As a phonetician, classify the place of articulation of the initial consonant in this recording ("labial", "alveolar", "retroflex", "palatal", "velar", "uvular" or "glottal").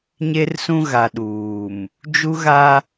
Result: palatal